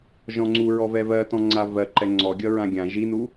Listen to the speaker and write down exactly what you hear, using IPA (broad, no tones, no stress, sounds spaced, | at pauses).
ʒ ɔ̃ ŋ͡ǀ u ɹ ɔ v ɛ v ɜ t ɔ̃ ŋ͡ǀ a v ɜ ǃ ɛ ŋ͡ǀ ɔ ɡʲ ʌ ɹ ã ɡʲ ã ʒ i n u